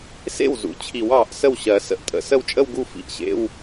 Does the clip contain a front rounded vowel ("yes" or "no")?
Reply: no